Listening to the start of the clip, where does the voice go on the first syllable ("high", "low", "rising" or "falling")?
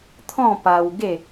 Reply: falling